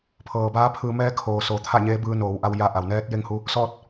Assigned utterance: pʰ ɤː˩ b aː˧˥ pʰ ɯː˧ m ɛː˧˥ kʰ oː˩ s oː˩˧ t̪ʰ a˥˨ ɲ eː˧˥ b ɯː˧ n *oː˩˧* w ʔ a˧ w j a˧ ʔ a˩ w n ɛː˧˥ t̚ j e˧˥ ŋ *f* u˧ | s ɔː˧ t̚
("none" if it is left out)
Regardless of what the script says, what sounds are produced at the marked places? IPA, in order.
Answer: oː˩˧, h

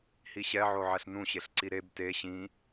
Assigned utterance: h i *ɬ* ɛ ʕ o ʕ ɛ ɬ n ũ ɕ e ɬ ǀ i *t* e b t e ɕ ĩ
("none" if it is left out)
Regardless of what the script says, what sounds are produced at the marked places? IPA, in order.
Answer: ɕ, ɾ

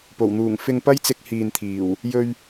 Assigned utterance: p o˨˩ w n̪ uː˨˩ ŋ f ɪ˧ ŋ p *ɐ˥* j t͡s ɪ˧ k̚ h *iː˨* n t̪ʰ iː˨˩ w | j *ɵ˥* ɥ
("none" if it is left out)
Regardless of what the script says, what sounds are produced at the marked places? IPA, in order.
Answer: ɐ˥, iː˨, ɵ˧

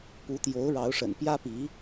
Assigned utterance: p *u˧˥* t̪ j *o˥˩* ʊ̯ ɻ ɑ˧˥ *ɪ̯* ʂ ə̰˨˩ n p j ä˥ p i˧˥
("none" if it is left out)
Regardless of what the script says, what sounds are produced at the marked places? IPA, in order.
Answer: u˧˥, o˧˥, ʊ̯

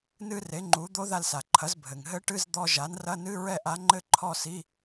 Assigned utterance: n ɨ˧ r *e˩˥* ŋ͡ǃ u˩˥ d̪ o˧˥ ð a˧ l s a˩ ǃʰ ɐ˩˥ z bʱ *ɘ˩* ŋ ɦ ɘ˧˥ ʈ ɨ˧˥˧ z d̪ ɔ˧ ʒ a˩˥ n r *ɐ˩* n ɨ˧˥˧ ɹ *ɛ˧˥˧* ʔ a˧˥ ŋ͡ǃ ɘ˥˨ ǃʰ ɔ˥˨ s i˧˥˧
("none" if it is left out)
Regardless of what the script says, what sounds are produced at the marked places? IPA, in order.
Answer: e˩˥, ɘ˩, ɐ˧˥˧, ɛ˥˨

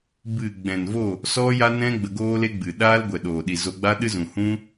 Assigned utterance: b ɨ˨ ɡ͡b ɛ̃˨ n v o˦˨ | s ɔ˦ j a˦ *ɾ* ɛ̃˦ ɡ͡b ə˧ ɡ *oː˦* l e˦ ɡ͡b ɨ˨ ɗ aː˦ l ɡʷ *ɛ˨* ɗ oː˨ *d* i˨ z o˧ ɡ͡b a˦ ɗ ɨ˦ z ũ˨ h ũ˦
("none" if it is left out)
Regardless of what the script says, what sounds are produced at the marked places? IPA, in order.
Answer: n, oː˦, ɛ˨, ɗ

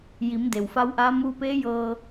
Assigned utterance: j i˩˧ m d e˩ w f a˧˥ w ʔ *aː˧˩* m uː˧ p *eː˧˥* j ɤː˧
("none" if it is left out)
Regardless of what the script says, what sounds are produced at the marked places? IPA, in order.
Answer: aː˧˥, eː˧˥

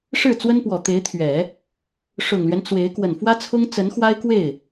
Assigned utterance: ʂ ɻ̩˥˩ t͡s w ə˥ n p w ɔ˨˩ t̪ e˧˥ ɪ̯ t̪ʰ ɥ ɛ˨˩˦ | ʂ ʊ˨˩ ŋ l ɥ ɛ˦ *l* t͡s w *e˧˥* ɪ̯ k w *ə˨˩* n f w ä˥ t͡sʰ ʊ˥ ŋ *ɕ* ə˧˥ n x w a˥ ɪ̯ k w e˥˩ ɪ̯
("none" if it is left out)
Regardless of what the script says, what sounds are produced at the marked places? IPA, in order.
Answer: n, e˧˥, ə˨˩, t͡s

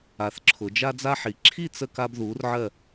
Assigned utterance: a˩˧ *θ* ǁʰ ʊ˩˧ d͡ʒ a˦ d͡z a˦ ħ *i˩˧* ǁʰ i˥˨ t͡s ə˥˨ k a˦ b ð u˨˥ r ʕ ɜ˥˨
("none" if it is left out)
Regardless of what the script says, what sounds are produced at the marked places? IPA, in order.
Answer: θ, i˩˧

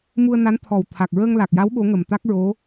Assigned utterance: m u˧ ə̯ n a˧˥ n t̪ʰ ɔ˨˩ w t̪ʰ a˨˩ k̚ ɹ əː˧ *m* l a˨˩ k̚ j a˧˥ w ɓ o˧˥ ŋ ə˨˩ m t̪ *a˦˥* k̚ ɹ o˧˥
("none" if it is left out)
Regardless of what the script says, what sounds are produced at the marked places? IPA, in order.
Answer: ŋ, a˦˥

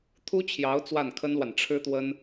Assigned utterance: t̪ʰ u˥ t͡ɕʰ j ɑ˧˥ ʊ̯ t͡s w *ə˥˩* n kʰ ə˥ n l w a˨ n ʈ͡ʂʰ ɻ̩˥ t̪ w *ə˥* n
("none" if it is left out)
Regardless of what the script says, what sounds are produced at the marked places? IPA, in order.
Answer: a˥˩, ə˥

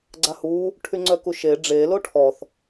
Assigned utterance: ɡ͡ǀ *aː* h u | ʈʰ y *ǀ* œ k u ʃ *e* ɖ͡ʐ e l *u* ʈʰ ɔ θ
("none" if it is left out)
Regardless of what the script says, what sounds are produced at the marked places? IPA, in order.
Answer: a, ŋ͡ǀ, e, o

